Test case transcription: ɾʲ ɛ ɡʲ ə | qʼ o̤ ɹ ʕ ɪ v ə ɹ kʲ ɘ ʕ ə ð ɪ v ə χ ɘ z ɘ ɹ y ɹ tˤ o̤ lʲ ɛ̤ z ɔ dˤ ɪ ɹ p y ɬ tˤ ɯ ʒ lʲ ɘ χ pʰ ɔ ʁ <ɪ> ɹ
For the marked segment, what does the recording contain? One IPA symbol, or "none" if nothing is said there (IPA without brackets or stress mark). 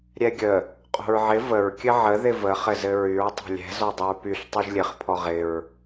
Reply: ɪ